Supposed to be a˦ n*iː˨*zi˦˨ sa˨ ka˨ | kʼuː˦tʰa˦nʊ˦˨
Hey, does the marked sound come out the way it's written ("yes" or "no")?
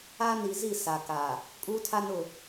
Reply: no